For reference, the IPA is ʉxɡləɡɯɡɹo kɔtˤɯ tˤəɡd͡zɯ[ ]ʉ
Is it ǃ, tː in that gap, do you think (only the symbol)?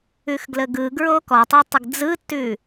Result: tː